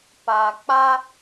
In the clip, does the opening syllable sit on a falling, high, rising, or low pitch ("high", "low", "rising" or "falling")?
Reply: low